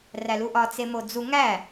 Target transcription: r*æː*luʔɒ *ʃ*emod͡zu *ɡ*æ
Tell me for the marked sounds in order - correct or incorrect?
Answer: incorrect: æ, incorrect: t͡s, incorrect: ŋ

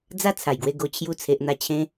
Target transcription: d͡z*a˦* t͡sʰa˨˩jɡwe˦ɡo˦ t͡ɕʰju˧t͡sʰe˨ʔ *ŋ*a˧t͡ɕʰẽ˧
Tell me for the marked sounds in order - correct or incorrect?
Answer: correct, incorrect: n̪

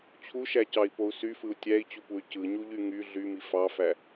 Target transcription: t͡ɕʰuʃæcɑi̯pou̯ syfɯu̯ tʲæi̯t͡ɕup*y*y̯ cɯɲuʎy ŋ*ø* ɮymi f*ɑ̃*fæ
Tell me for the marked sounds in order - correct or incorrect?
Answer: incorrect: u, incorrect: y, incorrect: ɑ

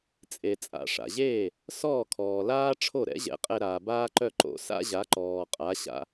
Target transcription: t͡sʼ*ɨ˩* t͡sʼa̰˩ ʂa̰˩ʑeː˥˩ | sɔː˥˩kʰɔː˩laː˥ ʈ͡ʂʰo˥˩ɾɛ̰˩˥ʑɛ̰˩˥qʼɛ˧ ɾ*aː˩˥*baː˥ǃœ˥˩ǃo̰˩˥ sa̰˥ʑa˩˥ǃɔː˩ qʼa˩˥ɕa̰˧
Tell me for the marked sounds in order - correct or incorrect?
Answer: incorrect: e˩, incorrect: aː˩

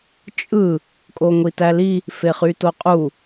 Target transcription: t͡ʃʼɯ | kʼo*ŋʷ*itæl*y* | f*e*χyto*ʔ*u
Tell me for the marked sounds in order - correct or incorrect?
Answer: correct, incorrect: i, correct, incorrect: qʼ

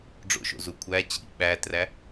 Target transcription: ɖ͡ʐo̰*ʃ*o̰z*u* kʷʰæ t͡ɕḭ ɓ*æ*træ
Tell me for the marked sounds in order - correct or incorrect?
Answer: correct, correct, correct

